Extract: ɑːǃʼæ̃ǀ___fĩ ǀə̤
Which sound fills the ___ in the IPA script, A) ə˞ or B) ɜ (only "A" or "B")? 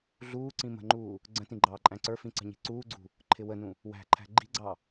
A